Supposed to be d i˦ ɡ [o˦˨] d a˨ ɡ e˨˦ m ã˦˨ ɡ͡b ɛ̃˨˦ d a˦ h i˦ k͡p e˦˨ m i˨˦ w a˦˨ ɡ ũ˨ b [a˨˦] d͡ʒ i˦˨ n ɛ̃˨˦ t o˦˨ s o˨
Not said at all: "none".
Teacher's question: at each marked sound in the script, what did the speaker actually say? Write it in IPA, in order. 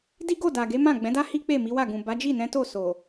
o˦˨, a˨˦

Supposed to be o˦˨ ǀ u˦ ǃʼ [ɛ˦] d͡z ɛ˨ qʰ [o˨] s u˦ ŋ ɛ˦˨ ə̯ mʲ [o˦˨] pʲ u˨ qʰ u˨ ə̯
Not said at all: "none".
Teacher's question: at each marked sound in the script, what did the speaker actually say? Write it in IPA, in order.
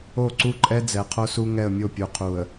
ɛ˦, o˦, o˦˨

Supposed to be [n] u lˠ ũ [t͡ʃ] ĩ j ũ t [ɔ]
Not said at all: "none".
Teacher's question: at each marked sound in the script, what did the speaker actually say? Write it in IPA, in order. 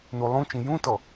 n, t͡ʃ, ɔ

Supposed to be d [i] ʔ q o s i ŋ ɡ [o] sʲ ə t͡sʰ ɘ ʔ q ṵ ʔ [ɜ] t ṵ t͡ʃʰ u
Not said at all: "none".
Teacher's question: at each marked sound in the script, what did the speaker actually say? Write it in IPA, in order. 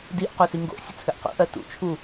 i, o̰, ɜ

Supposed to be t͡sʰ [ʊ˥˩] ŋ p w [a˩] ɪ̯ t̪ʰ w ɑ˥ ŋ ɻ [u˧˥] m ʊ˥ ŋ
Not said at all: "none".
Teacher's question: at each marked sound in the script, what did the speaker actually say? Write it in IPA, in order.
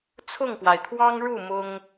ʊ˥˩, a˩, u˥˩

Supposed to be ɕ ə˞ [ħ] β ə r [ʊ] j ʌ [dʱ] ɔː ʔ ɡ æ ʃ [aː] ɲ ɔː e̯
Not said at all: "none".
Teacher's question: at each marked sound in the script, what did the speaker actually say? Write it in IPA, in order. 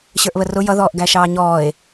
ʔ, ʊ, ð, ɑː

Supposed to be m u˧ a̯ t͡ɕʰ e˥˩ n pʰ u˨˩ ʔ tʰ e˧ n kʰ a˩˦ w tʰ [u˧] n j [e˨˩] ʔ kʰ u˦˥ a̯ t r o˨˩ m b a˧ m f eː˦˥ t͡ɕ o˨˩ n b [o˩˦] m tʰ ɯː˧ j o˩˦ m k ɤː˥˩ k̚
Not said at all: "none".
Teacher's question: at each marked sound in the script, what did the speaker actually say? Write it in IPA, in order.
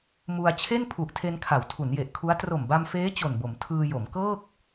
u˩˦, e˨˩, o˩˦

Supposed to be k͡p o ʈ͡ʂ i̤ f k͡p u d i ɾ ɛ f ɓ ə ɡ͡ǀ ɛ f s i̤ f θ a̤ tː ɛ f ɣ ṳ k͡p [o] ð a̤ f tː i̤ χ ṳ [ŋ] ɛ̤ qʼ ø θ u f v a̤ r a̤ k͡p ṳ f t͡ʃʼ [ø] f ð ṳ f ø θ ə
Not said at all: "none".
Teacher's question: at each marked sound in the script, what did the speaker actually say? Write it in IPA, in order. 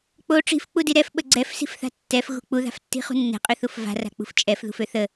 u, nː, ɛ

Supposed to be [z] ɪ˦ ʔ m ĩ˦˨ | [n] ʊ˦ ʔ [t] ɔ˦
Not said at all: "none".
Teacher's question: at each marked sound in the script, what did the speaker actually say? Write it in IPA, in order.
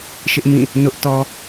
ʃ, n, t

